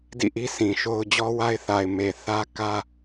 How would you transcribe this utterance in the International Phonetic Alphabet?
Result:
d ḭ˦˨ ʔ i˦ s ĩ˨ ʃ o˦ ʊ̯ d͡ʑ ɔ˦ w a˦ ɪ̯ θ a˨ ɪ̯ m e˨ θ ä˦ k ä˦

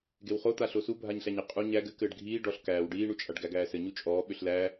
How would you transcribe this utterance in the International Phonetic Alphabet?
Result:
ɡ e w χ o t̪ a ɬ o s u bʱ a ɲ ɬ æ ɲ ɪ qʼ u ɲ æ ɡ ɘ k ɘː ɖ ɡʱ iː ɖ ɔ ɬ k æː w ɖ iː ɳ u t͡ʃʼ a ɖ ɡ æ ɡ æː s ɘ ɲ u t͡ʃʼ ɔː ɓ ʏ ɬ l æː

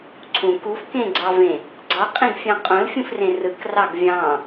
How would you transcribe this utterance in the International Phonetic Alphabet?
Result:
ǀʰ ũ k u f k ẽ ɡ͡ǀ ɑ v ẽ | ɡ͡ǀ ɑ qʼ ĩ ɡ fʲ ɑ̃ qʼ õ l fʲ ũ f r ẽ r ɯ k r ɑ ɡ vʲ ɑ̃

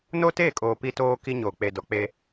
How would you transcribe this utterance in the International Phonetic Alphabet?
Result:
n o˦ t eː˦˨ kʼ oː˨ p i˦ t oː˦ k i˦ ɲ oː˨ k͡p e˨ d ɔ˨ k͡p e˦

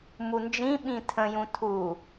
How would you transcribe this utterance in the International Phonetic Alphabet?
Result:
m u n d͡ʒ ĩ ɓ ĩ tʰ ə̃ j ũ tʰ u

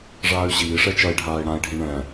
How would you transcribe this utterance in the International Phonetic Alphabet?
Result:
ʐ aː y̯ ɕ iː ʂ ɛ t͡ʃ ɐ i̯ ɖʱ aː i̯ ɽ ã i̯ ɖʱ ĩ ɳ ɛ̃

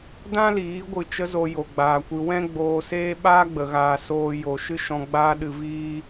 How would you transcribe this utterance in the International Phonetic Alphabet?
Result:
d ã˦ l iː˨˦ ɡʷ ɨ˧ t͡ʃ ə˦ z o˧ j o˨ ɡ͡b aː˨ kʷ ɨ˧ w ɛ̃˦ ɡ͡b oː˧ s eː˦ ɓ aː˦ ɡ͡b ə˨ ɣ aː˨ s oː˧ j o˨ ʃ ɨ˧ ʃ ɔ̃˧ ɡ͡b aː˦ ɗ ɨ˧ v iː˦

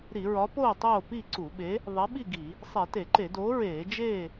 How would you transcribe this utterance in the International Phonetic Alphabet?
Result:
ɾ i˧˩˧ ɹ ɒ˨˥ p oː˥˨ tˤ oː˥˨ p i˥˨ ǀ u˧˩˧ ɓ e˨˥ | ðˤ e˨˥ ɓ i˥˨ ɡ i˧˩˧ | sˤ e˧˩˧ t e˧˩˧ ǃ e˧˩˧ d oː˨˥ ɹ eː˧˩˧ d͡ʒ eː˥˨

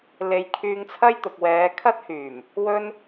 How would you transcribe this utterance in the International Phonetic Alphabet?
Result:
l e˧ j kʰ yː˧ ŋ t͡sʰ ɐ˥ j t̪ ʊ˨ k̚ w ɛː˨˧ kʰ ɐ˥ t̚ h yː˨˩ m | w ɵ˥ n

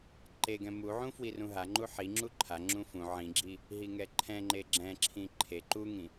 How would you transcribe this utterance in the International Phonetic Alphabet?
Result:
ǃ e ɡ ɛ̃ m u ʕ ũ f w i r ũ ɦ a ŋ͡ǃ u ħ i ŋ͡ǁ u ǃʰ a ŋ͡ǁ ũ f ũ ʕ ĩ ɡ͡ǁ i | ɦ i ŋ ɛ ǃʰ ɛ̃ ŋ͡ǃ e ɡ͡ǁ ɛ̃ ǁʰ ĩ ǃʰ e ǃ u ŋ ĩ

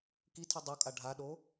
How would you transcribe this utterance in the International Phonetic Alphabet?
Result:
k i tʰ i dˤ o kʼ a ɖʱ a ɗ o

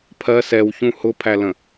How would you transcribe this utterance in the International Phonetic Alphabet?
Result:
pʰ ɜ s ɛ w ç ũ h ʊ pʰ æ l ə̃

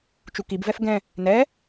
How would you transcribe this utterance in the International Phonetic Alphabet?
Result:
t͡ʃ u k i b v ɛ f ɡ ɛ̃ | n ɛ

